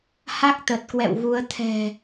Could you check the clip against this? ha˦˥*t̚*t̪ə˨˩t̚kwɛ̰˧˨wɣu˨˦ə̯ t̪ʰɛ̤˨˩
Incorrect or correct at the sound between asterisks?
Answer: incorrect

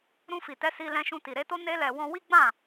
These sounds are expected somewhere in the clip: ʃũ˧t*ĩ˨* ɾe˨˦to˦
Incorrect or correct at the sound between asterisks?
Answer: incorrect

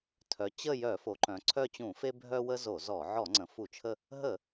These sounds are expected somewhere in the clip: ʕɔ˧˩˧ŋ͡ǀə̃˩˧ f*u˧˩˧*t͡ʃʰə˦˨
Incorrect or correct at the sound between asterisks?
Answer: correct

